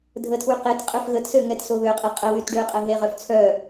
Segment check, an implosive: absent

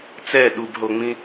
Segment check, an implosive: present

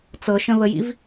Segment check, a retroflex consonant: absent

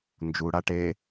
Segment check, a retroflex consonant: present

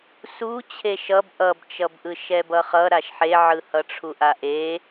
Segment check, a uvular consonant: present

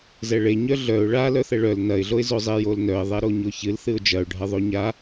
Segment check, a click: absent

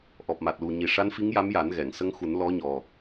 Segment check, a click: absent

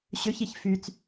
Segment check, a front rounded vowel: present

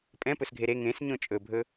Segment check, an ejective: present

